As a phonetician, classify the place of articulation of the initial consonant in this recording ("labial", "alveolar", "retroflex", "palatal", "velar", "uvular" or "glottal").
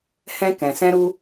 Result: glottal